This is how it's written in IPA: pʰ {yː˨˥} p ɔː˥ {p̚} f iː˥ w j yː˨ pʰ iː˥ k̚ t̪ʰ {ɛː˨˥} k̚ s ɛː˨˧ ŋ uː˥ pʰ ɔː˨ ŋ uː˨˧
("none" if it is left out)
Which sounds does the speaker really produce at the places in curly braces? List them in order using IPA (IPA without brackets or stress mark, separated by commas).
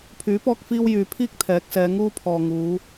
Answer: yː˨˥, k̚, ɛː˨˥